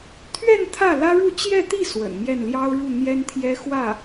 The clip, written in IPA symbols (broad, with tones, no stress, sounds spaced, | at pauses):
t̪ʰ ɥ ɛ˥˧ n t̪ʰ ä˥˩ l ä˥ ɻ u˥˧ t͡ɕ j ɛ˥˧ t̪ i˥˩ s w ə̰˨˩ n m j ɛ˥˩ n l j ɑ˥ ʊ̯ ɻ u˥˩ n̪ j ɛ˥ n t̪ʰ j ɛ˥ x w ä˥˩